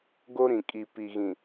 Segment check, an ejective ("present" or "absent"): present